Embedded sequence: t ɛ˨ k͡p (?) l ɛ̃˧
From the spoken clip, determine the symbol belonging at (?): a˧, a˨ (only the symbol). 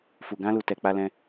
a˧